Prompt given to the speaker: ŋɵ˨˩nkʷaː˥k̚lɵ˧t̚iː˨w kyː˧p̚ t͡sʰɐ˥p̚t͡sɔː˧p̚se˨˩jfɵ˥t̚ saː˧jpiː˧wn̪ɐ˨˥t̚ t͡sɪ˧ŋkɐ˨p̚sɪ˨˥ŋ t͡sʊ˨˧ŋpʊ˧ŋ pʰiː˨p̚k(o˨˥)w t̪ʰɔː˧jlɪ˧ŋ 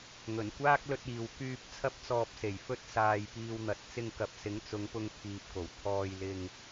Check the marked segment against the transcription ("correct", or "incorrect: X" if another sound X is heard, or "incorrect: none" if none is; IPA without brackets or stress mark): incorrect: o˨˩